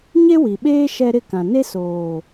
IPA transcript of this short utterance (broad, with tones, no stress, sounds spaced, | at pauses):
ɲ e˦ w i˨ ɓ eː˦ ʃ ɛ˦ ɾ ɪ˦ k ã˨ n e˦ s oː˨